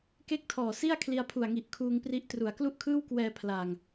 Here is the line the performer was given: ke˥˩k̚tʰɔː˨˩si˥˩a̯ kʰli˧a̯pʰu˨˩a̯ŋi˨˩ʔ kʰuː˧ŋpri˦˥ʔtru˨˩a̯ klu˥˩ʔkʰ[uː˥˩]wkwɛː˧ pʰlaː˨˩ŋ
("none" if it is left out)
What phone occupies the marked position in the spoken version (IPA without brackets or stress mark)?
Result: ɯː˥˩